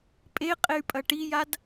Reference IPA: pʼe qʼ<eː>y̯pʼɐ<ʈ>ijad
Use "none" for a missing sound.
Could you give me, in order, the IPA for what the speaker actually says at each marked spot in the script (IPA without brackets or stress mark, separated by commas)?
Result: e, ʈ